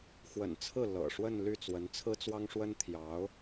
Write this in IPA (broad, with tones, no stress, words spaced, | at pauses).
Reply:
xwə̰˨˩nt͡sʰɹ̩˥˩ lɤ̰˨˩ ʂwə˥˧nly˥˩t͡swə˧˥n t͡sʰɹ̩˥t͡swɑ˥ŋʂwə˥n t̪ʰjɑ˧˥ʊ̯